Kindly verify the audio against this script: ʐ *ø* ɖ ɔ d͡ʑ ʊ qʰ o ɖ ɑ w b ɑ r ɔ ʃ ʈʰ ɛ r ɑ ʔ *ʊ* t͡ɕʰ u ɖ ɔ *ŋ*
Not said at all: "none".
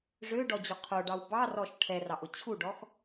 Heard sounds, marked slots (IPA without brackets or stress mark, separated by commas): ø, ʊ, x